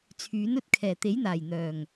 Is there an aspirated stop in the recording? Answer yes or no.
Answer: yes